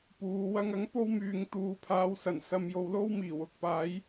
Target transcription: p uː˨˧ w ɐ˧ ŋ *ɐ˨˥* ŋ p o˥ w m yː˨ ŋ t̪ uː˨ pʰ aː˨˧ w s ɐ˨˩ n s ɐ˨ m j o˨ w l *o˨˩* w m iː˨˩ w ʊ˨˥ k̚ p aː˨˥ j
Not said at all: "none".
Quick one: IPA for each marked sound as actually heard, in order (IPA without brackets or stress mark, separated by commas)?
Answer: ɐ˨˥, o˥